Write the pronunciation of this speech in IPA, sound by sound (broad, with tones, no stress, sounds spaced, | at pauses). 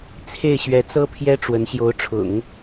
t͡sʰ e˥˩ ɪ̯ ɕ ɥ ɛ˧˥ t͡s ɤ˥ pʰ j ɛ˥ ʈ͡ʂ w ə˧˥ n ɕ j o˧˥ ʊ̯ ʈ͡ʂʰ ʊ̰˨˩˦ ŋ